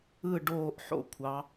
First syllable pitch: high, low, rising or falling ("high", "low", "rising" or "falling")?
falling